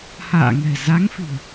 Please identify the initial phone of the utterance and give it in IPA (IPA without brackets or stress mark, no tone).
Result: h